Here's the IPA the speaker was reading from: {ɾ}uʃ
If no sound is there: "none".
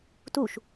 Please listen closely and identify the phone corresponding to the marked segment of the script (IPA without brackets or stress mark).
t